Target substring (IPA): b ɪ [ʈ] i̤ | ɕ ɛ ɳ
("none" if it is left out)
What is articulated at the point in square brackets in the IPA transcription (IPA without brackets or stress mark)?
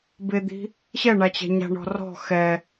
d̪